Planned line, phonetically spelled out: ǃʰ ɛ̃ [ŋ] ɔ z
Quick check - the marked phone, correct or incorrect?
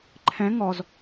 correct